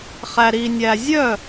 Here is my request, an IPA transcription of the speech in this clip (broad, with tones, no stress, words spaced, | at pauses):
χæ˨ ɾi˨nʲæ˨ zʲœ˥˩